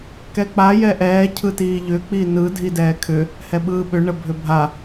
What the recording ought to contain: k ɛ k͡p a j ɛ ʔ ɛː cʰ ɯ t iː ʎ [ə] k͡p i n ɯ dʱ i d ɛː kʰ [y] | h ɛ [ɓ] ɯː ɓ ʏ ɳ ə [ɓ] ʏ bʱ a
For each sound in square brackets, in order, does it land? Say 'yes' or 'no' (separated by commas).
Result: no, no, yes, no